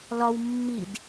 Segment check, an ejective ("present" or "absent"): absent